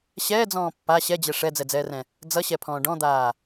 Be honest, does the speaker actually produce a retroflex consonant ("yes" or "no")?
yes